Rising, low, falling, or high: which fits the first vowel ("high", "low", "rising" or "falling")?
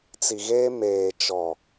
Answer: low